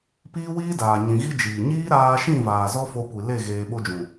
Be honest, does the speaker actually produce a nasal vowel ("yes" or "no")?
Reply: yes